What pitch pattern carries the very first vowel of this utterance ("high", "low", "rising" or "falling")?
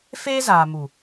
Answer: high